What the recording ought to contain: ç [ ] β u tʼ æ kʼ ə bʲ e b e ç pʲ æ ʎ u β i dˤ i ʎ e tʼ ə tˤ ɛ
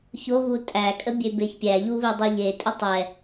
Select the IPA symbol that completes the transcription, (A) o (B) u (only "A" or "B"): A